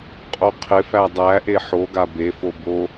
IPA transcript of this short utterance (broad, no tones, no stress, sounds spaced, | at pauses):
qʼ o qʰ ɪ f æ dˤ æ ʔ e ħ o ɡ a b e f o b o